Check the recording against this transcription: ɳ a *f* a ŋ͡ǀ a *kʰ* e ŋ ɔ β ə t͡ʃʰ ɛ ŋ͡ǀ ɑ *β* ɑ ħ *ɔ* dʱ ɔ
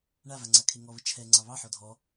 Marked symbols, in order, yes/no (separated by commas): no, yes, yes, yes